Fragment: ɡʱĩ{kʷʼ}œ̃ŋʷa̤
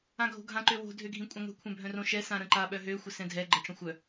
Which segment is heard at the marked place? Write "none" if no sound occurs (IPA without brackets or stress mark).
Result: kʷʼ